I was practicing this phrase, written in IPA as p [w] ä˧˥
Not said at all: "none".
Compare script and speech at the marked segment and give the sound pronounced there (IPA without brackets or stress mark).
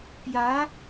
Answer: j